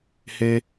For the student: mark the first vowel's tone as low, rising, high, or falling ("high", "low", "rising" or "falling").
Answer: high